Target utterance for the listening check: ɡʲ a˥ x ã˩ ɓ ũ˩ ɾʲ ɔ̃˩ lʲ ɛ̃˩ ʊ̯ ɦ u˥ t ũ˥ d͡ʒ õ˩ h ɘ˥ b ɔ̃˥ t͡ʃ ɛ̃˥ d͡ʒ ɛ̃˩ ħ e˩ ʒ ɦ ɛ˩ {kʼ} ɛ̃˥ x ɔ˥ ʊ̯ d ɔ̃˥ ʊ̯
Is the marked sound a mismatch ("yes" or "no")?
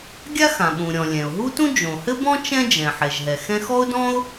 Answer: yes